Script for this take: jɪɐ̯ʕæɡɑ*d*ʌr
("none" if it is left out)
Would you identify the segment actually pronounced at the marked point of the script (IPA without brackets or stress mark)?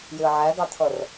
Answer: t̪ʰ